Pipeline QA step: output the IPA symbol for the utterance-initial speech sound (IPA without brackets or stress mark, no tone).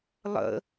lˠ